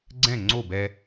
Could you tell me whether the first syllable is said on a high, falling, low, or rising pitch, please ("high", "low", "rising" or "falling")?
falling